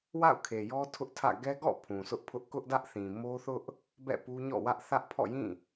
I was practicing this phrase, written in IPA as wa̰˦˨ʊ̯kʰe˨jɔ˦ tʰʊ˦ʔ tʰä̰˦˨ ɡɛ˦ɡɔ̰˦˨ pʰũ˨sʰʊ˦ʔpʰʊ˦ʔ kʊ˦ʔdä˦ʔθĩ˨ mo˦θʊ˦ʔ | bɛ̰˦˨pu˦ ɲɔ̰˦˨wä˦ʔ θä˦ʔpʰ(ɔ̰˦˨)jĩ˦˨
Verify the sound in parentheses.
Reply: correct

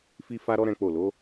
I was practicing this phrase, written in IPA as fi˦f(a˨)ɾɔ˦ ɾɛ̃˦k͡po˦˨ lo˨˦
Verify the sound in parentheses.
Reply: incorrect: a˦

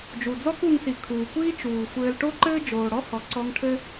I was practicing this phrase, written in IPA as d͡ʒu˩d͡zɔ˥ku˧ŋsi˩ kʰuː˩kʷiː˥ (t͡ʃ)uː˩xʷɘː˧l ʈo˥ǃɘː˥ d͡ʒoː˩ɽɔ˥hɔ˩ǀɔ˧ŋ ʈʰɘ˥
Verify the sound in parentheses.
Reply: correct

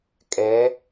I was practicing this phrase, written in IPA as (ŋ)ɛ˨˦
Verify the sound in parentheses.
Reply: incorrect: kʼ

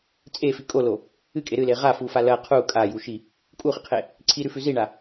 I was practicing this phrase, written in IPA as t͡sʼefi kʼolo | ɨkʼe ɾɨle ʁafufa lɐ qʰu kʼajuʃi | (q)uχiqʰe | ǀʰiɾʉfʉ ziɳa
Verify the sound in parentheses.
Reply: incorrect: kʼ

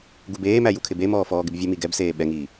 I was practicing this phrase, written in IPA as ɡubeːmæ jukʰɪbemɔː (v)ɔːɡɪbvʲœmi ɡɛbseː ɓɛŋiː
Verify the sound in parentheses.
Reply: incorrect: f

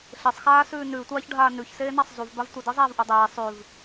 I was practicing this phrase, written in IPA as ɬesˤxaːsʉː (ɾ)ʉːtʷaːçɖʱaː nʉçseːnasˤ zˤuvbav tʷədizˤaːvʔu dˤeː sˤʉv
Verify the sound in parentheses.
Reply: incorrect: n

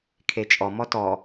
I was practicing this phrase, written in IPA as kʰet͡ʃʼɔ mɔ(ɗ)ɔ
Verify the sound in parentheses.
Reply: incorrect: t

